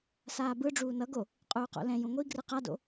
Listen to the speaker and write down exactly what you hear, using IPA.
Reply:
saːbɯ ɖ͡ʐuːnʌɡo | qʼuːqo̰lɛ̃ jũŋʷi ɡrɯqado̰

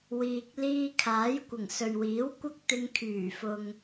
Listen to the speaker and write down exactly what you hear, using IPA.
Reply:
wiː˧k̚ liː˧kʰaː˨˥jkʷɪ˨˩ŋ sɵ˨ɥwiː˨˥w kʷɐ˥k̚t̪ɪ˧ŋkʰyː˨˩fʊ˨ŋ

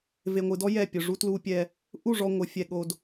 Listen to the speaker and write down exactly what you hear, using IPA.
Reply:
ve˨ŋʷɨ˨dɔ˦ jɛ˦˨ pʲʊ˨ ʐu˦tlu˦pʲɛ˦ | ʔu˦˨ʐɔ˨ ŋʷɨ˨fʲɛ˦ɠo˦d

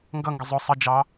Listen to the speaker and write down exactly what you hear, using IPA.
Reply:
ŋɡʌŋɡə zˤʊ sˤə d͡ʒɑ

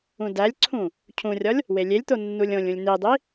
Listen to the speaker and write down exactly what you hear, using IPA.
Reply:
ũdælʲǀʰũ | cʰũrʲɒlʲ | welʲelʲt̪o nːulʲõlʲũlʲ nidˤi

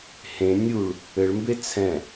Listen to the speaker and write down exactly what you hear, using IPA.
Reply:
hẽ nʲuɭ | ɘɭmbe t͡sʰɛ̃

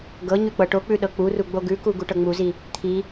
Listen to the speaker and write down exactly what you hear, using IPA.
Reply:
ɡɤ ɲʉk͡pɤʈok͡pʉ ɗɤk͡puru ɡ͡boɡʉku ɡuʈɤŋ͡muzi | t̪ʰi

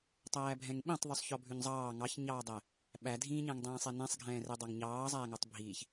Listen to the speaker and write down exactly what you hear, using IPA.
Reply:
tˤæːbʱɛ̃ŋɓĩtˤ ðˤʉsˤçɔbʱʉɲzˤɑː ŋɑçɲɑːdˤæ | ɓædʱĩːɲæ̃ŋdˤɛ̃ː sˤɛnɛ̃sˤɡʱɛ̃ːrɛ dˤɑŋɲɑːzˤæːŋɔtˤ bʱiːç

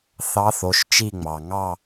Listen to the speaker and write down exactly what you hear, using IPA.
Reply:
θɑ˧˥θo˩˧˩ʃ t͡ʃi˦˨ŋ͡mɑ˩ ŋɑ˦˨

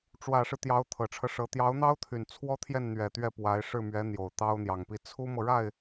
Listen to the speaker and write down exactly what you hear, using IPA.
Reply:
ʈ͡ʂwä˨˩ʂɻ̩˦ t̪jɑ˧˥ʊ̯t̪ʰɤ˨˩ʈ͡ʂʰɤ˦ʂɤ˧˥ t̪jɑ˧˥ʊ̯n̪ɑ˥ʊ̯t̪ʰy˨˩n t͡sʰwɔ˥t̪ʰjɛ˥˩nn̪ɥɛ˨˩ t̪ɥɛ˥˩pwa˧˥ɪ̯ ʂɻ̩˥˩mɥɛ˧˥n̪jo˨˩ʊ̯ t̪ɑ˥ʊ̯n̪jɑ˨˩ŋpi˥˩ t͡sʰu˥mɤ˨ɻa˥˩ɪ̯

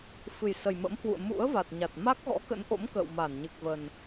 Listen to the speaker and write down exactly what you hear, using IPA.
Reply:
fɨ˨˩jsə˨˩jmə̰˧˥mhwṵ˧˨ə̯ mṵ˧˥ə̯va˨˩t̚ ɲa˨˩t̚ma˦˥k̚ ɣɔ̰˧˥kə̰˧˥nʔo̰˧˥m kə̰ː˧˨wma˧˩nɲɨ˨˩k̚və˨˩n

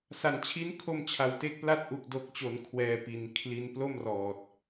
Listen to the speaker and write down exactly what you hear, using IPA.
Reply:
sa˩˦nt͡ɕʰi˦˥n kʰo˧mt͡ɕʰa˨˩w te˦˥k̚pla˥˩t̚ ʔu˨˩k̚do˨˩k̚t͡ɕo˩˦n kʰwɛː˧pi˨˩nkʰli˧n plo˥˩mrɔː˨˩t̚

